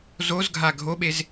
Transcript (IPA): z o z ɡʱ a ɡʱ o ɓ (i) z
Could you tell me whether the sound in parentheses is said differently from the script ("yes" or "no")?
yes